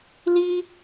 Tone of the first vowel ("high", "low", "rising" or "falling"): high